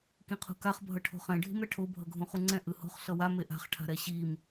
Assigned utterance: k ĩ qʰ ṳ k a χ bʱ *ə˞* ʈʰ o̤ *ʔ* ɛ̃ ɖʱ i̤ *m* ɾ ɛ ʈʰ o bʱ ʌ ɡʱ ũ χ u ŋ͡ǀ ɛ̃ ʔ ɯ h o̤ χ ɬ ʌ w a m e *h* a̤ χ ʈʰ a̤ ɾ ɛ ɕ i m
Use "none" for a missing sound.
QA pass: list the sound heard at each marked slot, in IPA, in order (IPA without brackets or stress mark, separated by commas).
ʌ, χ, m, ʔ